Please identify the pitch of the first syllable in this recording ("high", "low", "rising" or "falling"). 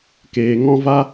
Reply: low